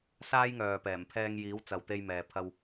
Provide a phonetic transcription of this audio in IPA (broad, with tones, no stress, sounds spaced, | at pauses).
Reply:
s aː˥ j ŋ œː˨ p ɛː˨˩ m pʰ ɛː˧ ŋ j iː˨˥ w t͡s ɐ˨ w t̪ e˧ j m ɛː˨ pʰ ɐ˧ w